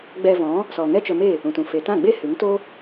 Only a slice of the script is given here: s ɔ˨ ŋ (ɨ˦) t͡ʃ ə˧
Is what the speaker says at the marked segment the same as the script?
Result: no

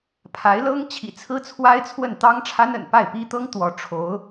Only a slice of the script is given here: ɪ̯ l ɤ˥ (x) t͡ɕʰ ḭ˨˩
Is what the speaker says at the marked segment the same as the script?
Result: no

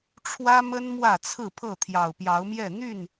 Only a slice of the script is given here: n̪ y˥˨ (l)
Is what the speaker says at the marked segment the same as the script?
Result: no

